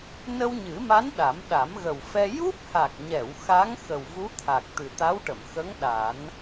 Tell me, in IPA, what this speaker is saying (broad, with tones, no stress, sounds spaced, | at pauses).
n ə˧ w ɲ ɨ˨˩˦ m a˧˥ n ɗ a˨˩˦ m ɗ a˨˩˦ m ɣ ə˨˩ w f ɛ˧ j u˦˥ p̚ h a˨˩ k̚ ɲ ɛ˨˩˨ w x a˧˥ ŋ x ə˨˩ w v u˧˥ t̪ʰ a˨˩ k̚ t̪ ɨ˨˩ t̪ a˧˥ w ʈ ə˨˩˨ m x ə˧˥ ŋ ɗ a˨˩˦ n